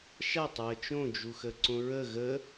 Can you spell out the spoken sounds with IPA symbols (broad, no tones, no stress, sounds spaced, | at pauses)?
ʃ a tˤ ɹ ə t͡ʃ õ d͡ʒ u x ə ǀ õ ɹ ə ɣ ə